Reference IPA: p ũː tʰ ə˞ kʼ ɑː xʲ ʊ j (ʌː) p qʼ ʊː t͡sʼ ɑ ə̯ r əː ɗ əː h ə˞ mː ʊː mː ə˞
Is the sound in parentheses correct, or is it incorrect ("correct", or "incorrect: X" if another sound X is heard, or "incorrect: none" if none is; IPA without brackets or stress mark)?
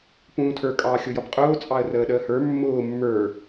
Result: incorrect: ʌ